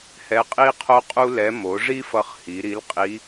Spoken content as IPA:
h ɛ˧˥ qʼ i˥ qʰ o˥ qʼ u˥ l ɛ˧˥ m o˩˧ ʐ i˥ f ʌ˧ χ h i˩˧ ɾ i˧˥ l qʼ i˧˥

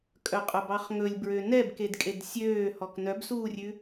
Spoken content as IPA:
kʼ œ qʼ œ b ɑ χ ŋ ɵ lʲ b ɹ ø n ɛ b k e d kʼ e d sʲ øː h ɔ k n œ b s uː rʲ ʉ

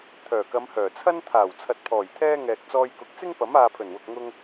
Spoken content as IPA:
t̪ʰ œː˨˩ k ɐ˨˧ m h œː˨˩ t͡sʰ ɐ˥ n t̪ʰ aː˨˩ w t͡sʰ ɐ˨ t̚ pʰ ɔː˨˩ j t̪ʰ ɛː˧ ŋ ɛː˨ k̚ t͡s ɔː˧ j k ʊ˨˥ k̚ t͡s ɪ˥ ŋ p ɐ˨˥ m aː˨ pʰ ɵ˨˩ n w ʊ˨ k̚ ŋ ʊ˧ ŋ

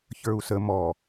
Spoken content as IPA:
ç ə˞ u̯ s ə m ɔ

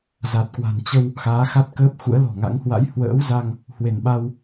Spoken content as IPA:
z a˨˩ t̚ k w a̤˨˩ n t͡ɕ ə˧ w | x aː˨˦ x a˦˥ t̚ k əː˦˥ p̚ x ṵ˧˥ ə̯ l ɔ̤˨˩ ŋ a̰˧˥ ŋ h w a̰˧˥ j h w ə̰ː˧˥ w z a˧ ŋ | h w e˧˩ n ɓ a˧ w

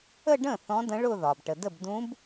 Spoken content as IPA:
ə˥˧ ɖ ə̃˥˩ θ ɔ̃˧˥ d ə̃˧˥ ɭ ʊ˥˧ ð ɒ˩ b ʈ ə˩ d ə˥˩ b d ũ˧˥ b

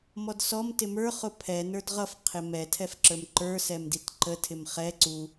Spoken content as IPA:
m ɔ d s ɔ m t ɪ m ə˞ χ ʊ pʰ ɛ n ə˞ d ʁ ʌ f qʰ ɪ m ɛ tʰ ɛ f ǁ ə˞ m ǃ ə˞ s ɛ m d i t ǃ ə tʰ ɪ m χ ɛ ǀ u

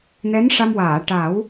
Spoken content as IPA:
n ɛ˧˥ n ʂ a˧ m w aː˨˩˨ ʈ a˨˩˦ w

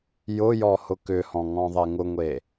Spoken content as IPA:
j ʊ j ɔ h ʊ k ʏ h ɔ̃ ŋ ɔ̃ ðˤ e ŋ ʊ ŋʷ e

